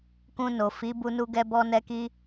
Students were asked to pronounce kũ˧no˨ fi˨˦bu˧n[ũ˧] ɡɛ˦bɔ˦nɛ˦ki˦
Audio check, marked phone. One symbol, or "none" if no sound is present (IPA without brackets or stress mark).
u˧